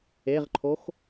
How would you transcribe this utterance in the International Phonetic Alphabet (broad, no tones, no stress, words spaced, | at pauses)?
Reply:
eʁǃʰox